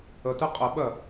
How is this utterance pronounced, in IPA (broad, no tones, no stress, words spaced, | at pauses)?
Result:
ətɨ qʼəɓɜ